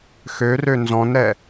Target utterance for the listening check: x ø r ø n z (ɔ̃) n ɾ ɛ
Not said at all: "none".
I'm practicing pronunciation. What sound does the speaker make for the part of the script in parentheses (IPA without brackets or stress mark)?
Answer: ɔ̃